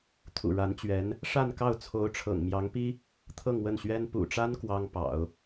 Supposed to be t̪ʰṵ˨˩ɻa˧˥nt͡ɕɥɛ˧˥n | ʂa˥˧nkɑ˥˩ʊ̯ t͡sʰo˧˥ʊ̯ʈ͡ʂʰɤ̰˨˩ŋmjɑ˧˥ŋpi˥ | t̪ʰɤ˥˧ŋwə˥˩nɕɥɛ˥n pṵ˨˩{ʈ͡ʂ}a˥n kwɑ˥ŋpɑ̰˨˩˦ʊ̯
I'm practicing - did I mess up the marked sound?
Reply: no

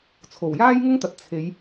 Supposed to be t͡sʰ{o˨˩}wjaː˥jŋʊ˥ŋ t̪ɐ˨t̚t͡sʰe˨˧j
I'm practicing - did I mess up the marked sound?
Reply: no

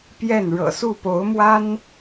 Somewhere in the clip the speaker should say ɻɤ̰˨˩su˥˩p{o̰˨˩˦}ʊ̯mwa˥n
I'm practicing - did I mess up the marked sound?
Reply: yes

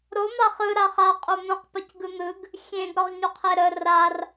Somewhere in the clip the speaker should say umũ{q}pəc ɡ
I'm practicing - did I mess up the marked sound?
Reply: no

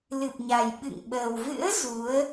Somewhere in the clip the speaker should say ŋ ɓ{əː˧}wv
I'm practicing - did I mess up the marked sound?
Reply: yes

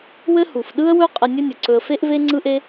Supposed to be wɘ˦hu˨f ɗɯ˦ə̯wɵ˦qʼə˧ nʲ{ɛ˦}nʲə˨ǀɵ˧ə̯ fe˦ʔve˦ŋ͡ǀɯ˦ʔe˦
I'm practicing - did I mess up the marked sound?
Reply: yes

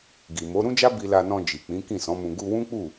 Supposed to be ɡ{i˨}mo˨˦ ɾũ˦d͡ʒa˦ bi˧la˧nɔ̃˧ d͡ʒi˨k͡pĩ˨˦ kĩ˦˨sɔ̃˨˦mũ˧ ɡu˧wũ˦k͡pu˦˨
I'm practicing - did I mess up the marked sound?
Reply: no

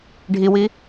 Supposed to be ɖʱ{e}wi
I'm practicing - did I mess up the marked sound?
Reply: yes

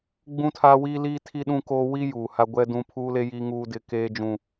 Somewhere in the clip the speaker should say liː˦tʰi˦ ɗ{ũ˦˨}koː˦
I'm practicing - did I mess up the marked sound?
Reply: yes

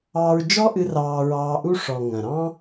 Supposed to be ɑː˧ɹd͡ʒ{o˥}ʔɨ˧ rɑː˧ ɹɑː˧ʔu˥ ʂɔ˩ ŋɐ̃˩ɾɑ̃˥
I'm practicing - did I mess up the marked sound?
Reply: yes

